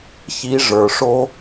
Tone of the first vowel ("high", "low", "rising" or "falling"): rising